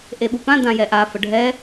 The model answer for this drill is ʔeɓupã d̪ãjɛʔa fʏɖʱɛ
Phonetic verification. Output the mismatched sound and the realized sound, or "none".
ʏ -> ə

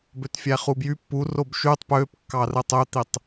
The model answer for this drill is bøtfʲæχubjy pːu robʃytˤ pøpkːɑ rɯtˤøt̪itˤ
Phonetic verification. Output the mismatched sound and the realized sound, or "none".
none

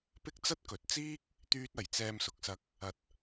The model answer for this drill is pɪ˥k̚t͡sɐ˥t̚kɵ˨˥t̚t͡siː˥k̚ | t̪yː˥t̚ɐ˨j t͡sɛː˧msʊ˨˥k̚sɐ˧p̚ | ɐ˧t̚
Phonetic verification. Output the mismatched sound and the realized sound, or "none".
p̚ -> k̚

